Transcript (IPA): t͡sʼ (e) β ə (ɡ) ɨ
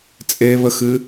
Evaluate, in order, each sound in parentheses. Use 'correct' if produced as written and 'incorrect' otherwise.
correct, incorrect: x

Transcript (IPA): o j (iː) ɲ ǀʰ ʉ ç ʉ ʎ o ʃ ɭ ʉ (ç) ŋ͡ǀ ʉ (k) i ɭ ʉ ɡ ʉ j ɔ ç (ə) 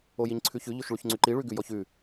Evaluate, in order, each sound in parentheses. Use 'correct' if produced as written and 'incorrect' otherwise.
incorrect: i, correct, incorrect: ǃ, incorrect: ʉ

